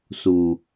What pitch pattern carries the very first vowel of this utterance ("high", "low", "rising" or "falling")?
low